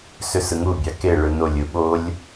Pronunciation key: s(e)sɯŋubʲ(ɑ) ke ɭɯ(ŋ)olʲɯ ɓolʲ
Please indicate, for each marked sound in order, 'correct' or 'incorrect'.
incorrect, correct, incorrect

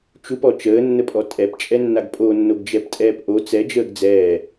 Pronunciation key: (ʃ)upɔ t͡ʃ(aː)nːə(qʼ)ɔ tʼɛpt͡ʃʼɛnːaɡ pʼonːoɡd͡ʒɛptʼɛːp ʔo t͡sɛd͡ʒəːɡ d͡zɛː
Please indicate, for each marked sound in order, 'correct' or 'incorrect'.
incorrect, incorrect, incorrect

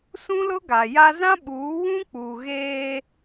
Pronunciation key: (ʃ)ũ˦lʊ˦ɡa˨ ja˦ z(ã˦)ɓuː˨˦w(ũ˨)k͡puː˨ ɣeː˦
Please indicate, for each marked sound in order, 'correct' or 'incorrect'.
incorrect, correct, incorrect

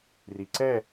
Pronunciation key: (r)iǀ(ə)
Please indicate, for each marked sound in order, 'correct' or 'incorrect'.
correct, incorrect

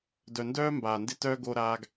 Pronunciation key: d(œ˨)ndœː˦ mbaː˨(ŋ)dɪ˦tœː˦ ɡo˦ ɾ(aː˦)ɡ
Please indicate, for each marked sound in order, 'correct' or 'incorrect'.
correct, incorrect, correct

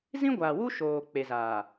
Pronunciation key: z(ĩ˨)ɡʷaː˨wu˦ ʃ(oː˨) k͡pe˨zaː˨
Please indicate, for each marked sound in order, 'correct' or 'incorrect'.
incorrect, correct

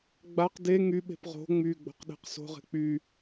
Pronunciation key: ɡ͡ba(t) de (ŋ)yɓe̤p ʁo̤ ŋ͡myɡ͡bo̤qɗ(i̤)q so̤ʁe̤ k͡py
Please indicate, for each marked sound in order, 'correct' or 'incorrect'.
incorrect, correct, incorrect

